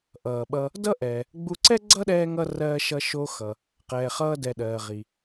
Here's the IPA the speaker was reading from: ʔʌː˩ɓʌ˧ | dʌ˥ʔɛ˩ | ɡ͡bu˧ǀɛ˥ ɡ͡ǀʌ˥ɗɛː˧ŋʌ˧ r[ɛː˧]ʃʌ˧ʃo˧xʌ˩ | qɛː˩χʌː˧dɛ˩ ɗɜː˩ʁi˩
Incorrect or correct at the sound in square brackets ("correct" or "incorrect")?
incorrect